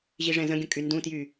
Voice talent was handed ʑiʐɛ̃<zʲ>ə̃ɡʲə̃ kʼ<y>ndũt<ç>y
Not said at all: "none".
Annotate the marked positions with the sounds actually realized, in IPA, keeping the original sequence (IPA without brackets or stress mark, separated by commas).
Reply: z, y, j